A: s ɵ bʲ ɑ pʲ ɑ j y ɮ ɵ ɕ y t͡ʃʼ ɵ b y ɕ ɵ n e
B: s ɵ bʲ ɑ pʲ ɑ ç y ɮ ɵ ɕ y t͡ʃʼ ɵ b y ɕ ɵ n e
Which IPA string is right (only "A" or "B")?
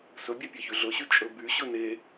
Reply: B